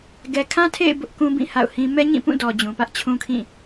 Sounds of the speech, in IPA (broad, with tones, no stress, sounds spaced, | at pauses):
ɡ ɛ˨ kʰ ã˦ tʰ ḛ˦˨ ɪ̯ b ʊ˦ ʔ k ũ˦ b ĩ˦˨ h a̰˦˨ ʊ̯ h ĩ˦ m ɛ˦ ɲ ĩ˦˨ p ũ˦˨ d ɔ˨ d͡ʑ ũ˨ p ä˦ ʔ t͡ɕʰ ũ˦ kʰ ĩ˦˨